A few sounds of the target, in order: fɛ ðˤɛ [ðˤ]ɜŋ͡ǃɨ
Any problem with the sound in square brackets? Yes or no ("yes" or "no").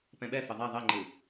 no